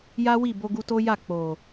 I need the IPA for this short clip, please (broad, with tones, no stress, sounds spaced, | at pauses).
j a˦ w i˦˨ b o˧ ɡ u˧ t o˦ j a˦˨ k͡p o˨